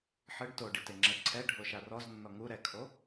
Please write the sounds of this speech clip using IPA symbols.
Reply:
ħ ɯ ɖ t o ɖ i t e ŋ͡ǁ ɛ ǀʰ ɛ ɖʱ o ʃ a r ɔ z nː ɔ ŋ u ɾ ɛ kʰ o

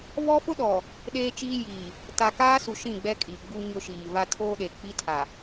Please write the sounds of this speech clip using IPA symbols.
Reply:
β ɔ˦ f ʊ˦ ɗ ɔ˨ | ɗ eː˦ t͡ʃ iː˦ j i˨ | t a˨ k aː˦ s u˨ ʃ ĩ˦˨ ɡ͡b ɛ˦ kʼ i˨ ɡ͡b u˦ ɲ ʊ˦ ʃ iː˨ v a˦ tʰ oː˦ ɗ e˨ k͡p i˦ tʰ a˨

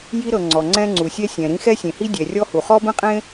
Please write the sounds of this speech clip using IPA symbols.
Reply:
j i˥ ɾ ɤ˩ ŋ͡ǀ ɔ˩ ŋ͡ǀ ɛ̃˥ ŋ͡ǀ u˩ sʲ ɛ˥ sʲ ɛ̃˩ ɾ ĩ˥ x ɛ˥ sʲ ẽ˩ h i˥ dʲ ɛ˩ rʲ ɔ˥ h u˩ χ ɔ˥ b ẽ˥ qʼ ẽ˥

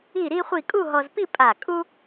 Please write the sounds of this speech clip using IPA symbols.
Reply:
i˥˧ ɾ i˥ χʷ i˥˧ kʼ u˥˧ ɦ ɔ˧ z p i˥˧ pʼ a˧˩ kʼ u˥

